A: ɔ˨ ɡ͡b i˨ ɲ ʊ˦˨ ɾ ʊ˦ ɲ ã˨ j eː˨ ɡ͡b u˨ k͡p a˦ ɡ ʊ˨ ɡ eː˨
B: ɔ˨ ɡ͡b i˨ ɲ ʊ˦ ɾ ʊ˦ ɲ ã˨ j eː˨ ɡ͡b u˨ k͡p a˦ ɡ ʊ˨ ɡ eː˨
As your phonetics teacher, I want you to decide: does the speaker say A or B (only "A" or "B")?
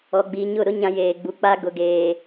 A